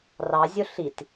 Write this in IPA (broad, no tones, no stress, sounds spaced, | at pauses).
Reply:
r ɑ zʲ ʊ ɬ i t